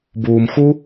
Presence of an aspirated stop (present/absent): absent